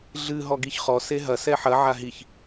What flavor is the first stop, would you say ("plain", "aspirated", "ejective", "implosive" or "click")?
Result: plain